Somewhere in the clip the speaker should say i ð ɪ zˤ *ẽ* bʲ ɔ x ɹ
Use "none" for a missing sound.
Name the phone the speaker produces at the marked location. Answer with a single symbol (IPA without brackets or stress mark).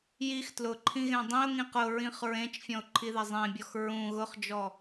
ẽ